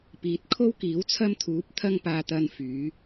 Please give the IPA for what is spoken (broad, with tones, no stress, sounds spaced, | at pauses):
p iː˨˥ t̚ kʰ o˥ w k iː˨˥ w t͡sʰ ɐ˥ m t̪ʰ uː˨˥ p̚ t̪ʰ ɐ˥ ŋ p aː˧ t̪ ɐ˧ n f yː˨˥